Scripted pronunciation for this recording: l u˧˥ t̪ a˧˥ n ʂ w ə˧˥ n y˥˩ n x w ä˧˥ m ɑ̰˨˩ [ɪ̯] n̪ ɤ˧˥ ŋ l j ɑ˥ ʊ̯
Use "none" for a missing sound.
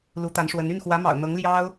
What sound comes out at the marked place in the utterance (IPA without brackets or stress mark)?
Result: ʊ̯